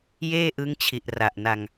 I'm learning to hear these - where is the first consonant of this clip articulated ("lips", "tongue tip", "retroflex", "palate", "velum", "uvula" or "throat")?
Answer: palate